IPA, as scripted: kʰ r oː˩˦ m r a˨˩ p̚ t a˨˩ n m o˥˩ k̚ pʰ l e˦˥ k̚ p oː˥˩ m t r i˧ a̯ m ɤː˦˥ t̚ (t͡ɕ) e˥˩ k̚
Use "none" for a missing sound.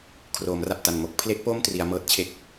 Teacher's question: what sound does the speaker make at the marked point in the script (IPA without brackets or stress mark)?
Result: t͡ɕʰ